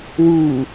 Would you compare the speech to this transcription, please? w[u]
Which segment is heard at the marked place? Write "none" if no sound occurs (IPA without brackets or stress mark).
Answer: u